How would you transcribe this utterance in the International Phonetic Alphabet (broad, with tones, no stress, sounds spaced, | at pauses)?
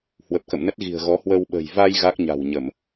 h w ə˨˩ p̚ k ə̰˧˨ m n ə˦˥ t̚ ɣ i̤˨˩ ə̯ ɣ ɔ˨˦ h w əː˧ w ɓ ə̤˨˩ j v a˧ j ɣ a˦˥ k̚ ɲ a̤˨˩ w ɲ ə˧˩˨ m